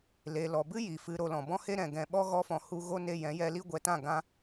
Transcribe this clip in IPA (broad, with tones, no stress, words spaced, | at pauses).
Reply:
le˨lɔ˨bɨ˦ ji˨fɨ˧ ɾo˧lɔ̃˨ bɔ̃˦he˦ ɾɛ̃˨ɡɛ̃˧ ɓɔ˦ɣɔ˧fɔ̃˨ hu˧ɣo˦ ne˧jɛ̃˨˦jɛ˧li˦ ɡʷɛ˨tã˦˨ ɡã˧